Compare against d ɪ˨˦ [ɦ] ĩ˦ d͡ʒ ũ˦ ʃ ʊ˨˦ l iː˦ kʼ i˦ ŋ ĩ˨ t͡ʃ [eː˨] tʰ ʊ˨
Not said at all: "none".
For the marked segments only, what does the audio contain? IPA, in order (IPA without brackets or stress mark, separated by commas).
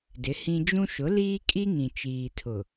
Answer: h, iː˨